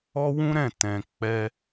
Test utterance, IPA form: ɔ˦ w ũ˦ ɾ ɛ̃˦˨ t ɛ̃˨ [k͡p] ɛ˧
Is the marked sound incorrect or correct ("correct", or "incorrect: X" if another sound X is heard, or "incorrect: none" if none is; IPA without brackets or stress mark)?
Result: correct